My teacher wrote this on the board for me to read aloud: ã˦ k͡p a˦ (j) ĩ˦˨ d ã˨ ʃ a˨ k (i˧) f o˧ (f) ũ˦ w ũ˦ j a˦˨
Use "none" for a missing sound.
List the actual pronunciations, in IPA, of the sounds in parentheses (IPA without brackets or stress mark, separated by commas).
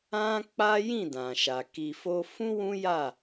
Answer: j, i˨, f